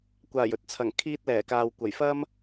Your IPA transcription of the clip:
kʷaː˨˩jɵ˨t̚ t͡sʰɐ˨˩ŋkʰiː˧t̚ lɛː˨˩kaː˨w kʷɐ˨˩jfɐ˥m

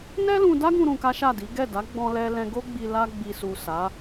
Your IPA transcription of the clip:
nɛ˦lũ˧da˦ɡũ˧ ɾũ˧ka˦ʃa˦˨di˨˦ ɡɛ˦˨da˨˦ ɡ͡bɔ̃˧lɛ˧lɛ̃˧ ɡo˦ɡ͡bi˧ la˧ɡ͡bi˨su˨ sa˨˦

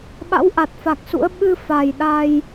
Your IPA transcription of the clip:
ɓa̰˧˥wʔa˨˩t̚fa˨˩k̚sṵ˧˥ə̯ ɓɨ˧ fa˨˩j ɗa˧j

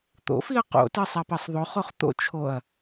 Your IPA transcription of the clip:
t̪o̰fiɐ̯ qo̰tɜ sˤapɜsˤðˤoχoχ t̪o̰t͡ʃʰoɐ̯

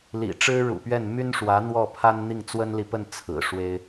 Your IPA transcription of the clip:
lḭ˨˩ʈ͡ʂɻ̩˥ɻṵ˨˩pɥɛ˥˩n my˥nʂwä˧˥ n̪wɔ˥˩pʰa˥nn̪i˥˩ŋ t͡swə˥nli˨pə˥˩n t͡sʰɹ̩˨˩ʂwe˥ɪ̯

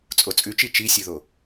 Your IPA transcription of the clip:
t͡sʼot͡sʼʉt͡ʃi t͡ʃisʲuðo

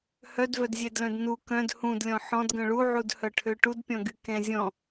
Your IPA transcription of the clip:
hœdvœdzʲɛdlœ̃d nu kœ̃d hũdlʲɔ̃ ħɔ̃dɡœ̃ ɭuʕudhœ ʈʰøʈudpʲɔ̃ɡy kɛ̃zʲɔ̃

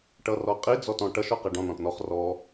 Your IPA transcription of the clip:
ʈʌrɔqʼi d͡zɔtɔ̃ʈʌʃ ɔqæɖɔ̃n ɔ̃tnɔχ rɔ

